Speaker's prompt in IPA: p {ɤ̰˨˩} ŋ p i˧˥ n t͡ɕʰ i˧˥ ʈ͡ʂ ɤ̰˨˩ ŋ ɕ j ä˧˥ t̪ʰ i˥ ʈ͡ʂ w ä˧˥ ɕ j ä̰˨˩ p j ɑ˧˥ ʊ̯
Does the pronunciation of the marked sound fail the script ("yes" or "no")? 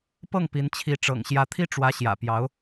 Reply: yes